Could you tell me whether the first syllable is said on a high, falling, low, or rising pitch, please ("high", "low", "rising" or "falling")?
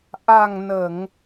low